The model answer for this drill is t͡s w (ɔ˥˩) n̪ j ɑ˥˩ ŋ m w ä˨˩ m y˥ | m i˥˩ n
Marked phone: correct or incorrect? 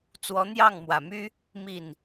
incorrect